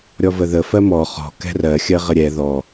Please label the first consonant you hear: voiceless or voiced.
voiced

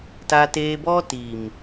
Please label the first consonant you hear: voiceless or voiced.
voiceless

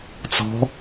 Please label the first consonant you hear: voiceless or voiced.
voiceless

